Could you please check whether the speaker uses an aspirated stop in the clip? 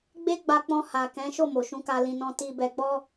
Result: no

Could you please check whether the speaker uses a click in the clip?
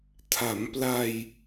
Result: no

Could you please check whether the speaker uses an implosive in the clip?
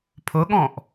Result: yes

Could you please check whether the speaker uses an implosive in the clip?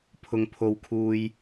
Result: no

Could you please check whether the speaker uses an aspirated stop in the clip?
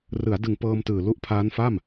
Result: yes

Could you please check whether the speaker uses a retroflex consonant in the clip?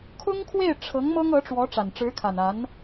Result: yes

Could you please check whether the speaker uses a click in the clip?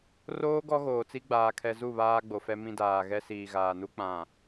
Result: no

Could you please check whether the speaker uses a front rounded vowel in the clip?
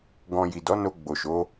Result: no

